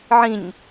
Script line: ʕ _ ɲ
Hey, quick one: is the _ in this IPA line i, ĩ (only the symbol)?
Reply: ĩ